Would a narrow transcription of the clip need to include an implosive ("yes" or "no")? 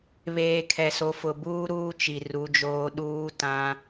yes